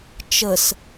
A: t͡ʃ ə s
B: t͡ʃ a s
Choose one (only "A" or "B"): A